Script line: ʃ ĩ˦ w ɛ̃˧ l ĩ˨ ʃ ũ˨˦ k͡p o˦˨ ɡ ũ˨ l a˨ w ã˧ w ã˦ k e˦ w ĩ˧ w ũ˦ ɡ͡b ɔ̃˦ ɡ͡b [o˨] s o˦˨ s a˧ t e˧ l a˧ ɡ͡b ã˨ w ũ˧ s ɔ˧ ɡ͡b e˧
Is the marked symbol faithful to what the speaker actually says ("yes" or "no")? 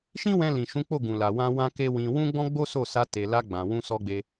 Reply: no